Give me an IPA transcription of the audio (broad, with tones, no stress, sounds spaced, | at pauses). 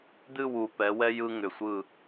d̪ ɨ˦˨ w u˨ p ɛ˨˦ w ɛ˦ j ɯ˦ ŋ ʏ˨ sʷ ɯ˦˨